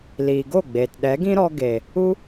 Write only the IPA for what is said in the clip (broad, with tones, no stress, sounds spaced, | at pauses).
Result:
l iː˨ ɡ o˦˨ ɡ͡b eː˨ t ɗ ɛ˨˦ ɡ ĩ˦ ɾ ɔ˧ ɡ e˨ | u˦